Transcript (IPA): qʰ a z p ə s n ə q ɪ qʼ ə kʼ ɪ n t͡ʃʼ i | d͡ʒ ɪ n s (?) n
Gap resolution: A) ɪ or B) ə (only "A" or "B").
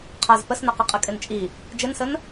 B